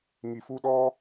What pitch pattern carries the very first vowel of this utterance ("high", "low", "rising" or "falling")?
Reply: low